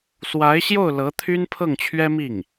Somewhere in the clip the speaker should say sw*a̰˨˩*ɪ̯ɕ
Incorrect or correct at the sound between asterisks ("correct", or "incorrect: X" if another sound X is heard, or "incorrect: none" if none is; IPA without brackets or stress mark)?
incorrect: a˧˥